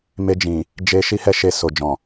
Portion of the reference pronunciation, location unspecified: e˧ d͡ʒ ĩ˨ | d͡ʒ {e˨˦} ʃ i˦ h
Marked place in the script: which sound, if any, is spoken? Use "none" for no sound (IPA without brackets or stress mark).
e˧